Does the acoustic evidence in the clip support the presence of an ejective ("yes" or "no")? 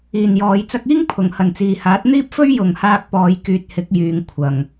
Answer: no